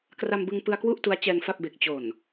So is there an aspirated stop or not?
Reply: no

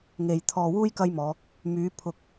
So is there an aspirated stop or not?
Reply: yes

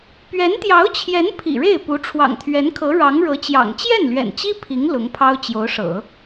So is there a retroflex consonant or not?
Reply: yes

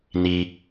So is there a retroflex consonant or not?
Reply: no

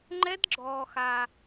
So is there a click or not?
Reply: yes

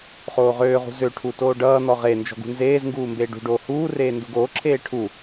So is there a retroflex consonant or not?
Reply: yes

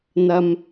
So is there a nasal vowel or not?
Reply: no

